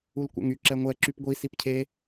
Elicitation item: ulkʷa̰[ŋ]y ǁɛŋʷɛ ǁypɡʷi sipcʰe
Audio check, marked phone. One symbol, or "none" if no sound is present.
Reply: ŋ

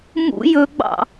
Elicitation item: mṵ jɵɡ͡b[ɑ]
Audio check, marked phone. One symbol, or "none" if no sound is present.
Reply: ɑ̰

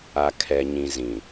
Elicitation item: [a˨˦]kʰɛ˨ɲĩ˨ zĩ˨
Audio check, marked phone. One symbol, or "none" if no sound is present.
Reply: a˨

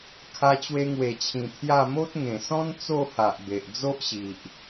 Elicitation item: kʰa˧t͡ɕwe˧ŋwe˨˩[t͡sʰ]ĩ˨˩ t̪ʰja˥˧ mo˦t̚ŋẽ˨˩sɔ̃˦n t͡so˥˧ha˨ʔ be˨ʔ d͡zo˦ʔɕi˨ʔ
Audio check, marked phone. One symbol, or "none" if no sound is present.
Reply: t͡ɕʰ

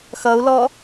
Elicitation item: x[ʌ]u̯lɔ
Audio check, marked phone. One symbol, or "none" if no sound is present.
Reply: ʌ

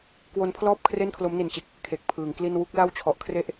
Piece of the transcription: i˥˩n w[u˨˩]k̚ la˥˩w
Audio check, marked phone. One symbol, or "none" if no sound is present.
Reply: u˦˥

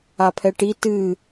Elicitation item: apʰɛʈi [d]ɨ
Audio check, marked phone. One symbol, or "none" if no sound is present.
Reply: t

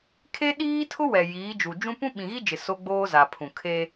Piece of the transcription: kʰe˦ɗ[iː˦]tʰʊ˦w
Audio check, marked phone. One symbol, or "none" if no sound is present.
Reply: iː˦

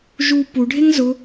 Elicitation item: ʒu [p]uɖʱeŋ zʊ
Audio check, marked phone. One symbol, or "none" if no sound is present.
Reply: p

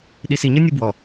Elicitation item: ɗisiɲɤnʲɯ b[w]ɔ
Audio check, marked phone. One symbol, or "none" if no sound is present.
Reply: w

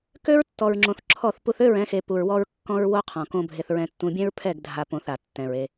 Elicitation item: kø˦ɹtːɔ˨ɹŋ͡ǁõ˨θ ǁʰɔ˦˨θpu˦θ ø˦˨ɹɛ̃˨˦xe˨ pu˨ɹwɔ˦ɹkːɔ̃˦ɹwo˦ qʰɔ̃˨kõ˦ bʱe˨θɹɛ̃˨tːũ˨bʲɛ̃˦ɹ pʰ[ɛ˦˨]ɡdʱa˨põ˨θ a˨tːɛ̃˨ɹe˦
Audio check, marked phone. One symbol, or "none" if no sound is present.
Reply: ɛ˦˨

